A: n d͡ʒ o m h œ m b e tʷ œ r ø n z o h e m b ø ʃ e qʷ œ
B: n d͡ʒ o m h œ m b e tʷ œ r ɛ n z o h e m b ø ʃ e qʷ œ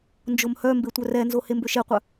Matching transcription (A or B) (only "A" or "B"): B